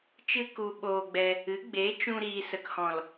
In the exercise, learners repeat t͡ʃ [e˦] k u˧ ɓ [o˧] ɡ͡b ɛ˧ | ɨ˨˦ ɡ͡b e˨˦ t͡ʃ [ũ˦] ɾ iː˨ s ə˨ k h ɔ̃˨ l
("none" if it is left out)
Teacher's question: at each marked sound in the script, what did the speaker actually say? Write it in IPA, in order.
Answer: ɨ˦, oː˧, ũ˧

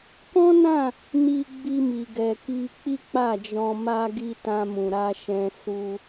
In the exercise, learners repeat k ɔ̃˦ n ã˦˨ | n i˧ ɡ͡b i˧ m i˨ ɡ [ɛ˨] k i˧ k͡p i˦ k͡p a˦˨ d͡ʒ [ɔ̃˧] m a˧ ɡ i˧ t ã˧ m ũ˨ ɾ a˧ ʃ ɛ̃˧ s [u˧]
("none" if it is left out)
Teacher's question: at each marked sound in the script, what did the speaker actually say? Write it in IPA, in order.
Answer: ɛ˨, ɔ̃˧, u˧

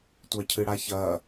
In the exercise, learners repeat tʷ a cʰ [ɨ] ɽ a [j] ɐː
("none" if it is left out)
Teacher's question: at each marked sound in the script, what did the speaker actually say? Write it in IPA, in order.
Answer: ɨ, ç

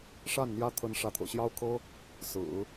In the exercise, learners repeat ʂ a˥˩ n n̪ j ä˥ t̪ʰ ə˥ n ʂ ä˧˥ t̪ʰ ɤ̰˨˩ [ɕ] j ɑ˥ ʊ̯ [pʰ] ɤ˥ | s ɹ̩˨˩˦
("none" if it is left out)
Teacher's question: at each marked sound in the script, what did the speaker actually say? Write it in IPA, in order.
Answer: ɕ, kʰ

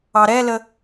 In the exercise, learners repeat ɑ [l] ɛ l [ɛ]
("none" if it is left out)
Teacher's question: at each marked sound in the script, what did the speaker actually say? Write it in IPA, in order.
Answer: ɾ, ə

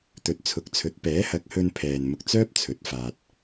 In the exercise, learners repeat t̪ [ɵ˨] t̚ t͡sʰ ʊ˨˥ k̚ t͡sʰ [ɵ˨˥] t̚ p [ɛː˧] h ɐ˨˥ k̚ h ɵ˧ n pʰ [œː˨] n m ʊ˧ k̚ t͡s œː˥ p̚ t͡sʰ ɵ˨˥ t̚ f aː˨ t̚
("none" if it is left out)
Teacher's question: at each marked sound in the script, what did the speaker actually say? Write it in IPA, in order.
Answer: ɵ˨, ɵ˨˥, ɛː˨˥, ɛː˨

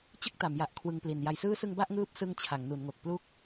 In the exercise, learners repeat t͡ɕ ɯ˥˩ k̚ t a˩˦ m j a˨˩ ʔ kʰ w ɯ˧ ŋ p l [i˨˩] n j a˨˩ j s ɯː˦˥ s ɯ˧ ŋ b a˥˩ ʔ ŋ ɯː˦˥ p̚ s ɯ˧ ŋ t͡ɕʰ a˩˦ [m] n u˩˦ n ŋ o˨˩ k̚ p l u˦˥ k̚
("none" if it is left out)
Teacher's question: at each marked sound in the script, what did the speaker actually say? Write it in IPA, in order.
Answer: i˨˩, ŋ

